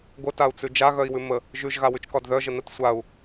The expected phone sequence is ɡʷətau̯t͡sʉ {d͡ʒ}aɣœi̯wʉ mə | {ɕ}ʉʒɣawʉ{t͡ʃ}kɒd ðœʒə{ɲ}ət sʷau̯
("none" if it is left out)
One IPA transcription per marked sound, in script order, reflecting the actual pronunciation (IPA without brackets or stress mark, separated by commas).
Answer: d͡ʒ, ʒ, t͡ʃ, n